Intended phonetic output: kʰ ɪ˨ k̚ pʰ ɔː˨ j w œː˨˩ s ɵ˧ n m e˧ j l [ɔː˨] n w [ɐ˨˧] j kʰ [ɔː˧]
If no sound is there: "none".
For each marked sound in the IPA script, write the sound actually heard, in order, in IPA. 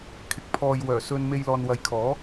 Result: ɔː˨, ɐ˨, ɔː˨˥

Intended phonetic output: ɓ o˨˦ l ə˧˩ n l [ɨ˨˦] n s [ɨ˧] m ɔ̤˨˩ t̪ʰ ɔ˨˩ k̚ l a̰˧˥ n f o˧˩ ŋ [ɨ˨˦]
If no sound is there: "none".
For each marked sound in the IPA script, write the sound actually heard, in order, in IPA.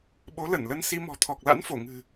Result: ə˨˦, i˧, ɨ̤˨˩

